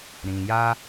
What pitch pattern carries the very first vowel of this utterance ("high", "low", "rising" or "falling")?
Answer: low